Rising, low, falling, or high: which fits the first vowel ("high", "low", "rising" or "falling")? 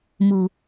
low